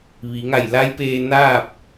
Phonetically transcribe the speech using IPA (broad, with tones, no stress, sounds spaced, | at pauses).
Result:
ʋ i˩˧ ŋ a˧˩ j l a˧˥ j p eː˧ n aː˥˨ p̚